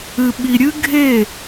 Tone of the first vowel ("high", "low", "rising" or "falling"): low